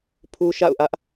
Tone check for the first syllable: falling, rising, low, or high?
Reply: high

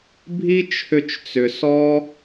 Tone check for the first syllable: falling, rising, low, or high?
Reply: high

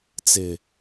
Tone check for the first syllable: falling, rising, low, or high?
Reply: low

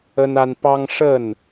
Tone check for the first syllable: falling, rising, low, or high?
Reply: high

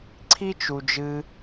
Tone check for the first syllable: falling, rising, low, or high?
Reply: high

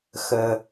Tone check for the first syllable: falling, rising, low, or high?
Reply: low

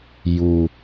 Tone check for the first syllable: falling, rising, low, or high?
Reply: low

